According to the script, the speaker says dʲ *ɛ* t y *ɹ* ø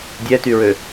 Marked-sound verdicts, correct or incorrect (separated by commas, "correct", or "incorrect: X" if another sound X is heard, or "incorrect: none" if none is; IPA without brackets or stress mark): correct, correct